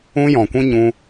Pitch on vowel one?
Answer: high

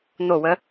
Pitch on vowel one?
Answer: falling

